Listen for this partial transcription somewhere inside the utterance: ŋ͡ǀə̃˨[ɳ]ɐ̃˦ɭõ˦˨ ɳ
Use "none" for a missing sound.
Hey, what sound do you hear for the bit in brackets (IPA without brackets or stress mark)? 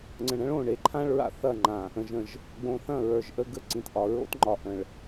ɳ